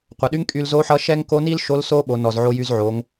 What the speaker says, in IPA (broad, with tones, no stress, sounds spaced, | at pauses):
qʷ ʌ˩ ɗ y˧˥ ŋ kʼ y˧ l z o˧˥ ħ ʌ˧˥ ʃ ɛ˥ ŋ k o˧˥ n i˥ l ʃ o˧˥ l s o˥ ɓ o˩˧ n ɔ˩ z ʕ o˧ j y˧ z ʕ o˩˧ ŋ